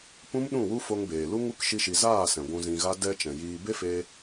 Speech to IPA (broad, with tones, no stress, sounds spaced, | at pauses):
p ũ˦ m ɗ ũ˦˨ w u˦ f o˧ ŋ b eː˨ l u˦ ŋ u˦ k ʃ i˦ ʃ i˧ z aː˦˨ s ɛ̃˨ ɡʷ ũ˧ z ĩ˧ ɣ a˦ d ɛ˧ t͡ʃ ɛ̃˨ j iː˧ b e˦ f eː˧